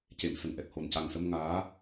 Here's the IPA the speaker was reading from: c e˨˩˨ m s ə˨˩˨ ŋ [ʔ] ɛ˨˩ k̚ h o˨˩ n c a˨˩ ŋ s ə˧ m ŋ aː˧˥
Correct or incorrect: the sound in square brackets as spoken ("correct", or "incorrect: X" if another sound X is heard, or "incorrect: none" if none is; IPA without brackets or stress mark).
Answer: correct